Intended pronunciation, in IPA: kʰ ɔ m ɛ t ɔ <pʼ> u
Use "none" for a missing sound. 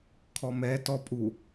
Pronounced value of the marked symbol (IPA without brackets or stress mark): pʼ